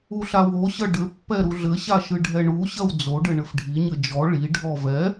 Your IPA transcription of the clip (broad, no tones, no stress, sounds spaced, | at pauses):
u ɬ a w o ɕ ɐ ɖ ɘ pː ɛ ɾ u ɮ ɘ ɕ a ʃ ɨ ɖʱ ɛ ɳ u ɕ ɐ w d͡z o ɖ ɘ ɳ ɘ f ɖʱ i ɲ ɘ d͡ʒ ɔ ɭ i ɖʱ ɔ v ɛ